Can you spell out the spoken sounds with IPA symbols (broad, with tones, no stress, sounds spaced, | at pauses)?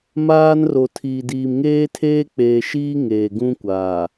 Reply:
m aː˦ n r o˨ tʰ iː˨ d iː˨ m ŋ eː˦ tʰ eː˦ k͡p eː˨ ʃ iː˦ ŋ eː˨ ɡ ũ˦ kʷ aː˨